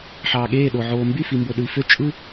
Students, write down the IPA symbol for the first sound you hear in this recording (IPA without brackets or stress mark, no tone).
ħ